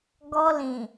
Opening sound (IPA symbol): ɡ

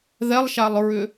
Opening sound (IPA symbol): ð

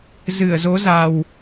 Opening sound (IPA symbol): z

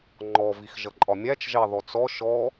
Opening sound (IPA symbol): ŋ͡ǃ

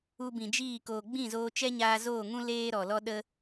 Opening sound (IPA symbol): u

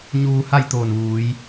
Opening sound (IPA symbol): ɲ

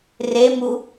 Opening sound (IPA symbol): r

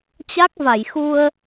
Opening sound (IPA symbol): t͡ɕ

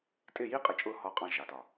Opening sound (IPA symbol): tʼ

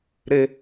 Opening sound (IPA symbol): ɾ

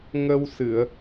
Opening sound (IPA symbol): ŋ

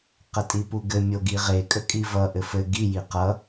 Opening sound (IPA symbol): q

